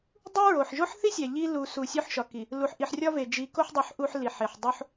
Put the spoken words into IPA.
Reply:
dˤ u˦ ɹ o˨ ħ ʒ o˦ ħ θ i˦ sʲ æ˨ ʎ i˦ l u˨ s u˨ sʲ o˦ ħ ʃ ɒ˨ k i˨ | l u˨ ħ ʔ i˨ ħ rʲ ɒ˦ v e˨ d͡ʒ i˨˦ k o˦ ħ dˤ u˨ ħ ʔ u˦ ħ l i˨ ħ e˨ ħ dˤ o˦ ħ

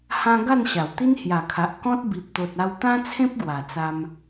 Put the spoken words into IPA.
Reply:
h ã˦ ɡ a˥˧ n ɕ a˨˩ w t̪ i˦ n h j a˨˩ kʰ a˨ ʔ k ɔ̃˦ t̚ b i˨ p̚ t̪ o˨ t̚ a˧ w t̪ ã˦ t͡sʰ ẽ˦ p̚ ɡ w a˨˩ t͡s a˧ m

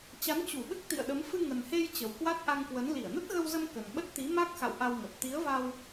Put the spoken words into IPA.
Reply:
t͡ɕ a˨˦ n t͡ɕ u˧˩ ɓ ɨ˦˥ k̚ t̪ ḭ˧˨ ə̯ ɗ ə˨˦ m f ɨ˧ ŋ ə˨˩ n h e˧ j t͡ɕ ə˨˩ w k w a˦˥ t̚ ʔ a˧ ŋ k w ə˨˦ n l i˧˩ ə̯ n ə˦˥ t̚ ɣ ə˧ w z ə˧ m k ə˨˩ n ɓ ə˦˥ t̚ t̪ i˨˦ m a˦˥ k̚ x a̰˧˨ w ʔ a˧ w ŋ ə˨˩ t̚ t̪ i˨˦ ə̯ v a˧ w

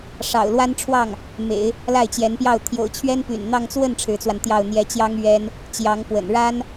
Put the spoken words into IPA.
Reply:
ʂ ɑ̰˨˩ ʊ̯ l w a˥ n ʈ͡ʂʰ w ɑ˥˩ ŋ | m ḛ˨˩˦ ɪ̯ | l a˥˩ ɪ̯ t͡ɕ j ɛ˧˥ n p j ɑ˥˩ ʊ̯ t̪ʰ j o̰˨˩ ʊ̯ t͡ɕʰ ɥ ɛ˥ n p y̰˨˩ n n̪ ɑ˥˧ ŋ t͡s w ə˥˩ n ʈ͡ʂʰ ɻ̩˧˥ t͡s w a˧ n t̪ j ɑ˥˩ ʊ̯ n̪ j ɛ˧˥ t͡ɕ j ɑ˥ ŋ ɥ ɛ˥ n | t͡ɕ j ɑ˧˥ ŋ p w ə̰˨˩ n ɻ a˥ n

